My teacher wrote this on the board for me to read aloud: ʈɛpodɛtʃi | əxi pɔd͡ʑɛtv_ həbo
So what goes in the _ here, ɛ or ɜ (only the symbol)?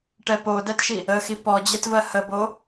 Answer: ɜ